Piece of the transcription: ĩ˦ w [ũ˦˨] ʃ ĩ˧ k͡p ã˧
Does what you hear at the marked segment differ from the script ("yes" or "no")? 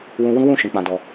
no